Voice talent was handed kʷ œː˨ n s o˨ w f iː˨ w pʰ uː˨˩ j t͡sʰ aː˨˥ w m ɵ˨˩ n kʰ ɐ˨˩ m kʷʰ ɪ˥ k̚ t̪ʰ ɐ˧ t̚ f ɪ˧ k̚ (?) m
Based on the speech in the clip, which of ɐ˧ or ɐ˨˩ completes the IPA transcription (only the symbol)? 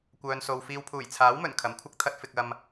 ɐ˧